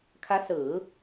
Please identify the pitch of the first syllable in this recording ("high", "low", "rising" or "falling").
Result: rising